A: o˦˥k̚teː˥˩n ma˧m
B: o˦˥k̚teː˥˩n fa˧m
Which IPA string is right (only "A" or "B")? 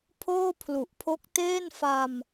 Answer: B